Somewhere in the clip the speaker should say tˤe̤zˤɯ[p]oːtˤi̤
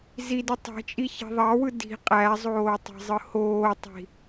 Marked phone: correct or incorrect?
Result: incorrect